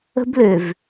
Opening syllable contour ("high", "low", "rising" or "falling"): high